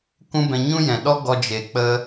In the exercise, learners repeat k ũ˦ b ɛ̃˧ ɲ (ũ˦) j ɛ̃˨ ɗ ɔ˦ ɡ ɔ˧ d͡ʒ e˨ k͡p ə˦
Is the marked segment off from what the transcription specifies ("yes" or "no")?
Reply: no